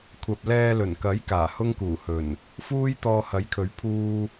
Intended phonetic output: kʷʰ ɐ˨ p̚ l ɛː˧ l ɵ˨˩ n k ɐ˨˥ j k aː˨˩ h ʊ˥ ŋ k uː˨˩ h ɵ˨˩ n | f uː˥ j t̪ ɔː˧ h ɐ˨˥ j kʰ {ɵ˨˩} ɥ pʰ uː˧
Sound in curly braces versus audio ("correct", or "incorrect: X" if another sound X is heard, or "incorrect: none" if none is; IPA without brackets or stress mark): incorrect: ɵ˨˥